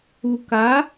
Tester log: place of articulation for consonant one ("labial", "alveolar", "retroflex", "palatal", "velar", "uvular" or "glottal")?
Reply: velar